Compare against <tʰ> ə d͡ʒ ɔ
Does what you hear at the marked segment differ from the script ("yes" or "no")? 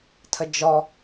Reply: no